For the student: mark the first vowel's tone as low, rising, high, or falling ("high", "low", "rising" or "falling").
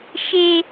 high